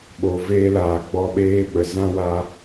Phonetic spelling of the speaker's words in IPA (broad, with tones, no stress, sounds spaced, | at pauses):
ɓ o˨ v eː˧ l aː˨ ɡ͡b ɔ˧ ɓ eː˧ ɓ ə˨ z ã˦ w a˧